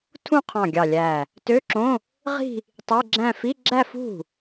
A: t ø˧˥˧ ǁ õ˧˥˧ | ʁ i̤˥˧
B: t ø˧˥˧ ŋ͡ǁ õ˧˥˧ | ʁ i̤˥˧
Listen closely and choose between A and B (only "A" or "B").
A